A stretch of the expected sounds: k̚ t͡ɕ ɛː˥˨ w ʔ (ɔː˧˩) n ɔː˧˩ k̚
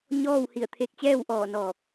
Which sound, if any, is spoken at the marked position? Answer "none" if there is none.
ɔː˧˩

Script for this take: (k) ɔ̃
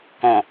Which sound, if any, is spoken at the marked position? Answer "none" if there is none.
k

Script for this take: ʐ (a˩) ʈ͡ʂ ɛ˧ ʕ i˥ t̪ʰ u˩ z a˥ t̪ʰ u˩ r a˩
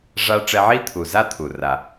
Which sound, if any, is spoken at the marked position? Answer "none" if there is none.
a˧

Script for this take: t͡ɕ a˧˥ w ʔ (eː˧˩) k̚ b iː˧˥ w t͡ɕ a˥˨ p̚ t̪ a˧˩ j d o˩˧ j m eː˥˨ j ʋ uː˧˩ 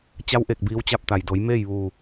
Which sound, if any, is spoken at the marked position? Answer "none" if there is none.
e˧˩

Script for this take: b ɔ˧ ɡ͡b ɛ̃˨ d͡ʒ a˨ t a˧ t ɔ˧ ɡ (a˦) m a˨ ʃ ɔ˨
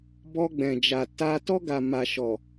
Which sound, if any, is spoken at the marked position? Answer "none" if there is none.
a˨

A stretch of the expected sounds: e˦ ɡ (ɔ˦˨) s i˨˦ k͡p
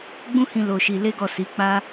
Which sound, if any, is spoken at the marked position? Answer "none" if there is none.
ɔ˦˨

